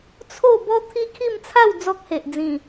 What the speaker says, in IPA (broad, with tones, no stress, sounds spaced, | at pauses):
t͡sʰ o˥˧ b ɔ˦ t̪ʰ i˦ kʰ i˥˧ m t͡sʰ a˥˧ w d͡z ɔ˦ k̚ h e˨ ʔ d͡z ĩ˨˩